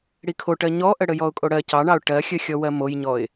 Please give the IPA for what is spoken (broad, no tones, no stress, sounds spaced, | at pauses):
ɽ i kʰ o ʈ ɜ ɲ ɔ ʔ ə ɽ ə j ɔ ʊ̯ kʼ o ɽ ɜ c ɑ ɳ ɑ ʊ̯ ʈ ɜ xʲ ə xʲ ɔ w ɜ m o j ɲ ɔ ɪ̯